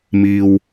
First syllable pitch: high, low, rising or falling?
low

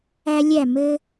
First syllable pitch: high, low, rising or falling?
high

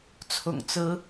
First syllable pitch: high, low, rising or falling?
low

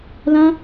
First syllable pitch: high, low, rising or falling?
high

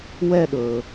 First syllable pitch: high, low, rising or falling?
falling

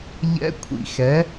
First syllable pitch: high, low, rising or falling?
rising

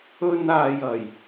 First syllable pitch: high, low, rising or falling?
high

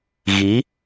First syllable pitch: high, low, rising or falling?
rising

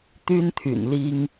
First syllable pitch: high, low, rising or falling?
high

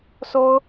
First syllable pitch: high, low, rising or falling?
high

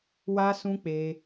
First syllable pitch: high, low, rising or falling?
high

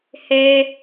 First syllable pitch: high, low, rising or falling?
high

